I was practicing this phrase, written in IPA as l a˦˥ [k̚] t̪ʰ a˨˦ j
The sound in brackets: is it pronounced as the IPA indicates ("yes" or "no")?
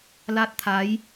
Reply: no